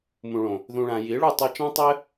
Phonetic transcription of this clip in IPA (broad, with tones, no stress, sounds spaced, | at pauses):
m ũ˨ ɭ õ˨ | ð ũ˧ ɭ ã˧ j i˨˦ ɭ u˦˨ tˤ u˧ t͡ʃ ã˦ tˤ ɘ˦